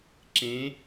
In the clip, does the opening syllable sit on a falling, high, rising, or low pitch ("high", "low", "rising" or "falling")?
rising